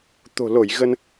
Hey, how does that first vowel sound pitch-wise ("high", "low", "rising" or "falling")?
low